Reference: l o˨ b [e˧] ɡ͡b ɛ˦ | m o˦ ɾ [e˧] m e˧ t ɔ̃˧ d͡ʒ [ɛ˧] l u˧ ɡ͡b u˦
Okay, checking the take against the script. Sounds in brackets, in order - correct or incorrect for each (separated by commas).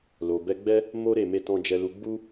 incorrect, incorrect, correct